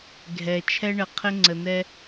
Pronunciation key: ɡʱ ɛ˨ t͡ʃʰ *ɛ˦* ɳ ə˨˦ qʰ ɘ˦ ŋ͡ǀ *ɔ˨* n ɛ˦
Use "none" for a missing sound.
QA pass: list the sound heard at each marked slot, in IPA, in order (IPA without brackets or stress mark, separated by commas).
ɛ˦, ə˨